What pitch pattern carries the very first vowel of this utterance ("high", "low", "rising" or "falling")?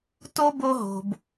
high